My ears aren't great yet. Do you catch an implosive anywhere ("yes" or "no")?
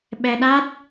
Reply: yes